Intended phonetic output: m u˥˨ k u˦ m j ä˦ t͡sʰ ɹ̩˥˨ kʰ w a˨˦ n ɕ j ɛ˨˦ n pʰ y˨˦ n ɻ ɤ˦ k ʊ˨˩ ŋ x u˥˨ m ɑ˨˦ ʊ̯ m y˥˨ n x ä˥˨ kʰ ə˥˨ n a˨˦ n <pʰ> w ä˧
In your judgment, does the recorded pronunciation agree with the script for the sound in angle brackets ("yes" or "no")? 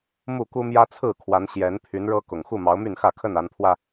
yes